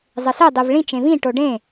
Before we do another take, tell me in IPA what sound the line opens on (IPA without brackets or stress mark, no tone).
zˤ